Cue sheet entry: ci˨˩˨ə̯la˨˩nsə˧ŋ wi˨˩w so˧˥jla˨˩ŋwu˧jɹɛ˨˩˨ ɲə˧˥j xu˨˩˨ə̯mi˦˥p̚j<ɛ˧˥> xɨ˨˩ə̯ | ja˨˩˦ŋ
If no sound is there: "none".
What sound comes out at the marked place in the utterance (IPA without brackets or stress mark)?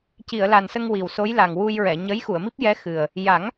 ɛ˧˥